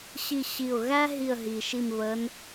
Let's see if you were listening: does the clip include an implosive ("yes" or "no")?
no